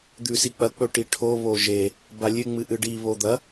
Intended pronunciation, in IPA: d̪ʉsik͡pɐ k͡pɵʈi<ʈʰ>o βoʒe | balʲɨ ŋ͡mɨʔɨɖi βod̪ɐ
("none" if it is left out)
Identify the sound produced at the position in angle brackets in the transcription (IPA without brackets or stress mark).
ʈʰ